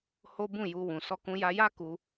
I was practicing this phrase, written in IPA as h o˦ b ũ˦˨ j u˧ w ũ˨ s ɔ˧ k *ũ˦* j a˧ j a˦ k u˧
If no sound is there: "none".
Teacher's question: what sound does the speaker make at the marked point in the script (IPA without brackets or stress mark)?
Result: ũ˧